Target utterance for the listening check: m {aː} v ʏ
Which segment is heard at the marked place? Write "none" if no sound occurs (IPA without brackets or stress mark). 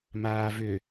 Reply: aː